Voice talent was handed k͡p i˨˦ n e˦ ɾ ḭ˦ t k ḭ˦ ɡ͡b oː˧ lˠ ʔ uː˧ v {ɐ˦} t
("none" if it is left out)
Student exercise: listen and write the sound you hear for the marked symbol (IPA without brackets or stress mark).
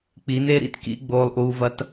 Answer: ɐ˦